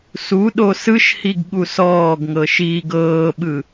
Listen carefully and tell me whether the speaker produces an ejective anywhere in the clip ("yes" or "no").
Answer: no